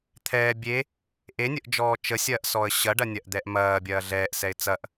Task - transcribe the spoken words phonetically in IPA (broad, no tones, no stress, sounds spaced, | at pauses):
t̪ʰ ɛː bʲ e | ʔ e nʲ ə ʔ d͡ʒ ɔː t͡ʃ ə sʲ ɐː ʔ s ɔː ə̯ ɕ ɐ ɖ ɐ nʲ ɐ ʔ d̪ ɛ ʔ m ɐː bʲ ɐː ɮ ɛː ʔ s ɛ ɪ̯ t͡s ɐ ʔ